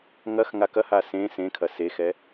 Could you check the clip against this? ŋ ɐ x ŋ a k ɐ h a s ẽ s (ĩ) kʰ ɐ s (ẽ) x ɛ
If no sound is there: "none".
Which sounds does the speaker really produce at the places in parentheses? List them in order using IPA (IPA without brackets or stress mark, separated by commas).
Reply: ẽ, e